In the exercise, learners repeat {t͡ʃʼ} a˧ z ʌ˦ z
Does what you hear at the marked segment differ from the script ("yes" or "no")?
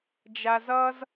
yes